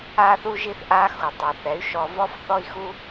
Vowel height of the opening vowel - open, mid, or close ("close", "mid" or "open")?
open